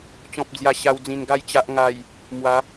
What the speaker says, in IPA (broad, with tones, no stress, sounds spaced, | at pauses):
t͡ɕ ɔ̃˨ p̚ d͡z j a˨˩ ɕ a˧ w d͡z ĩ˨˩ n ɡ a˥˧ j t͡ɕ a˨ ʔ ŋ a˨˩ j | m w a˨˦